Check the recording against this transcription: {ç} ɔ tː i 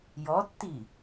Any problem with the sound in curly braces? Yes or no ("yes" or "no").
yes